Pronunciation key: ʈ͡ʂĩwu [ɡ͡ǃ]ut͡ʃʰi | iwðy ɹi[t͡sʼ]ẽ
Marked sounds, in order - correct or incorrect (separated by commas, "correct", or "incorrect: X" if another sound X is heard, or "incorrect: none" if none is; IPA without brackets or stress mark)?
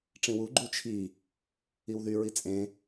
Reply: correct, correct